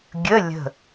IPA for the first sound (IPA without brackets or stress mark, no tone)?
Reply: ɡʲ